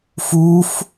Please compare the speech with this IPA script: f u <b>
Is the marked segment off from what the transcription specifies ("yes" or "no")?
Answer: yes